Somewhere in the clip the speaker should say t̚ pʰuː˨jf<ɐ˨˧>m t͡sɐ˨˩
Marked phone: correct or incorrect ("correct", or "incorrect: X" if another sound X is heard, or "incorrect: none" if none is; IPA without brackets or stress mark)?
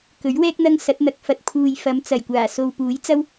correct